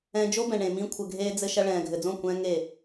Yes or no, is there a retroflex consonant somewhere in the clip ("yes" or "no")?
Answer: yes